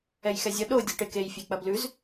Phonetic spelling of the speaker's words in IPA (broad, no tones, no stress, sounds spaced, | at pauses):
ɛ j x ɛ zʲ ʌ ɗ o dʲ o ʈ e k e j fʲ e k͡p ɐ b l ʉ z